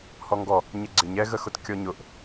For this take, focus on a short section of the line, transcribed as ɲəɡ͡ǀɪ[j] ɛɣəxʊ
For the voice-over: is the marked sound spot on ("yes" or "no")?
no